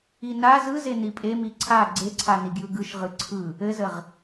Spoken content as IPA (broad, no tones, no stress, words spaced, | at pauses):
ina zɯze nipʼemi ǀʰa ɡ͡ǀeǀʰaniɡjɯ ɡɯʃʁɯ ǀʰɯ | ɘzəʁ